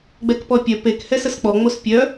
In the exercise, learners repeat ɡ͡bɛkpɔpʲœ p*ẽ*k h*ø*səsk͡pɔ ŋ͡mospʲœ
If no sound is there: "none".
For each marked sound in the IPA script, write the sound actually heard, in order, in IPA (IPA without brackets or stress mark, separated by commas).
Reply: e, ɛ